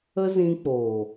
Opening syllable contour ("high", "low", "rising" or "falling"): high